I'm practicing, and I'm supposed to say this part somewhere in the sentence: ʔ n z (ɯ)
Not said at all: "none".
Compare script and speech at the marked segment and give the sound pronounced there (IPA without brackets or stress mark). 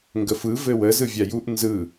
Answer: ɯ